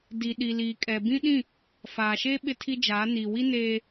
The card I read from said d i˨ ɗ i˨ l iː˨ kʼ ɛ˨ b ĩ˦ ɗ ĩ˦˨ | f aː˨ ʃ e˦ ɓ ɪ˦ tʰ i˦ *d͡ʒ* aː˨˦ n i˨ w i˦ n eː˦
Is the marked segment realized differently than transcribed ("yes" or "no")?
no